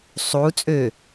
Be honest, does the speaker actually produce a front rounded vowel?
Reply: yes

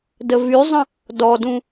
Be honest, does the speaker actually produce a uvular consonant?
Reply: no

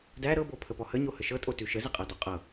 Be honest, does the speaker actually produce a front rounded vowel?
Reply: no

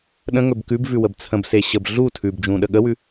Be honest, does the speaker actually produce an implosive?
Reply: yes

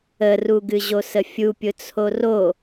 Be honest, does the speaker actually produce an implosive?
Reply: no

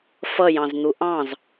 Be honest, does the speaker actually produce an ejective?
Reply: no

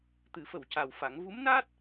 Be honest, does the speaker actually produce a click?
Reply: no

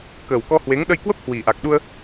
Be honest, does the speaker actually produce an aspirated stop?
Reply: no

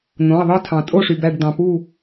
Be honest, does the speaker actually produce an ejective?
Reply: yes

